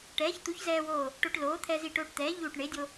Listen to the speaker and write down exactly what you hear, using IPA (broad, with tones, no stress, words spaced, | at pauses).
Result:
ʈɛː˩˥çt̪u˩˥çzɛː˧woː˧˩ | ʈo˧ʈ loː˩˥t̪ʰɛ˧ zi˧˩ʈoː˧ʈt̪ɛː˩˥ ʎuː˧˩ʈɳe˩˥dʲo˧